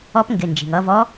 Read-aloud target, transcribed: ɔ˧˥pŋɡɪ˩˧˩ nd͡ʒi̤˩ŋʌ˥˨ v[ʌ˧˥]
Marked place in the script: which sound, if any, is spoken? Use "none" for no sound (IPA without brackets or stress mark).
ɔ˧˥